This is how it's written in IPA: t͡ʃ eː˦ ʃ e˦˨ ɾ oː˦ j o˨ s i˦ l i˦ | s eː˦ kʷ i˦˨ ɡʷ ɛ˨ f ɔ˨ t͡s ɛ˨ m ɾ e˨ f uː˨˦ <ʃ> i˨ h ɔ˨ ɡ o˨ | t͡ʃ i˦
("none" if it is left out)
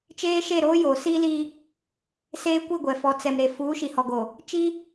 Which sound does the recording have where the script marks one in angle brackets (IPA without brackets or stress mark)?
ʃ